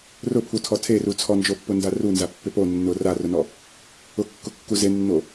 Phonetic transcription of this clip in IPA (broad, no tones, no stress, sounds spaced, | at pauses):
r ʊ pʰ u tʰ ɔ tʰ e r u t͡sʰ ɔ n d͡ʒ o pː ʊ n d a r u n z a pː ɪ p o nː ʊ r a r ʊ n ɔ | ʊ kː ʊ kː u z e nː o